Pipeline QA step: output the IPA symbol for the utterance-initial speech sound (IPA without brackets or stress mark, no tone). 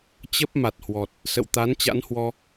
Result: t͡ɕ